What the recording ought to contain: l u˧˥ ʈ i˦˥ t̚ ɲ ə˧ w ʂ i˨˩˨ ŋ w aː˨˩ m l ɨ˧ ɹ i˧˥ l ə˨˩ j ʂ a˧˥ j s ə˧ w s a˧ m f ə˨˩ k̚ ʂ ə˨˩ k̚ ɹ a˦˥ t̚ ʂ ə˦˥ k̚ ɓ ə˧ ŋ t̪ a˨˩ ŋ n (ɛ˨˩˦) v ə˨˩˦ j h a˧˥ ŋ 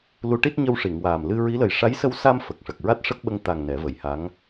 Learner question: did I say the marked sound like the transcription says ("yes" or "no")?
yes